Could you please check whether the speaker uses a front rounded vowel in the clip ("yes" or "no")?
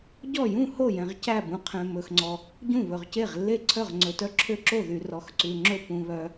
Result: yes